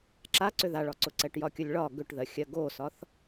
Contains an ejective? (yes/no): no